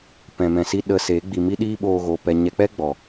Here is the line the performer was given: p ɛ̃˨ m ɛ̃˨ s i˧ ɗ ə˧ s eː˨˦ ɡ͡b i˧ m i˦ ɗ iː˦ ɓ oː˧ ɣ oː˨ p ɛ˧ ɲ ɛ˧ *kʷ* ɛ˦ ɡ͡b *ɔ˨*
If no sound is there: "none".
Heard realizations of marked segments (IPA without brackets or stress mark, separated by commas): k͡p, ɔ˨